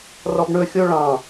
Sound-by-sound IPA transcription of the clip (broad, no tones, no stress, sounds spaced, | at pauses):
r ɔ b ɳ ɵ xʲ o ɭ ɑ̃